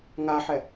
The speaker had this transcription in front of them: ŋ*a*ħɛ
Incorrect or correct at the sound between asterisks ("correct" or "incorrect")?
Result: correct